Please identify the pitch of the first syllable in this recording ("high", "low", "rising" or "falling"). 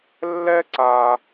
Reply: high